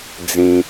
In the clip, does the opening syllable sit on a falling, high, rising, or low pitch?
high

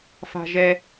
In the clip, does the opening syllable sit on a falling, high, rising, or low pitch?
low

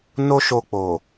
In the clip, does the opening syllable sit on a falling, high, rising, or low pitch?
high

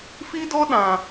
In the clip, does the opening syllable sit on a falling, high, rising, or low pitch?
high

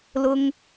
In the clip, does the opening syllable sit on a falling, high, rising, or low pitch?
high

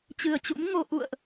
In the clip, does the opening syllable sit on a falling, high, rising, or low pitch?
low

